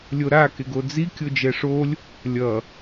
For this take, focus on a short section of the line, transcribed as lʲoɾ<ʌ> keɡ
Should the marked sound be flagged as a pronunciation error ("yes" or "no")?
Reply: yes